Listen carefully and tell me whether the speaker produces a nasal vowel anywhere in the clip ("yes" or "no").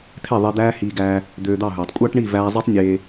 no